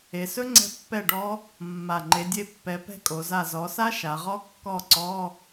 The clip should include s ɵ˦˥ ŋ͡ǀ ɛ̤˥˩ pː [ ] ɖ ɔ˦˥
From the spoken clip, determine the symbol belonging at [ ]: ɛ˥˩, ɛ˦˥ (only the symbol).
ɛ˥˩